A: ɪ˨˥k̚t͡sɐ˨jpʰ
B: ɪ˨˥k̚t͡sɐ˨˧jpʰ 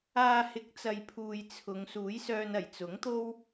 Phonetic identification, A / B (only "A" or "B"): A